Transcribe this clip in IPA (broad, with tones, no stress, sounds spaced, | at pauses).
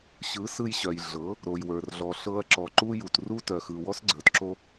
ɕ ɯ˨˦ s ɯ˧ j ɕ œ˨ j ɮ ɤ˨˦ | ɾ o˨ j w ə˞˨ r ɮ ɔ˨ ɬ ɤ˧ ɐ̯ ǁ ɔ˨ ǃ u˦ j u˨ t r u˦ t œ˨ x ɯ˨ w ɔ˦ s ɡ͡ǀ ə˞˨ t ǁ o˦